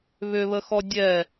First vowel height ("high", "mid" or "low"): high